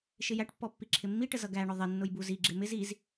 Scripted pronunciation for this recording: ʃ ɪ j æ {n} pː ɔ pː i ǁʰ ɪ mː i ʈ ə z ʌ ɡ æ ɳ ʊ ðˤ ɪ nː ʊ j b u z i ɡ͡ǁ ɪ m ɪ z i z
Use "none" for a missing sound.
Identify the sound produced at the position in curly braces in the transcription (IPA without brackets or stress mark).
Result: ʈ